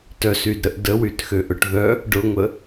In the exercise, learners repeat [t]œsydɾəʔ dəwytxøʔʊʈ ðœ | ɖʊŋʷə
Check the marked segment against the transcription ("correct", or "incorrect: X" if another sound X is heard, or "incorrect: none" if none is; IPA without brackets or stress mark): correct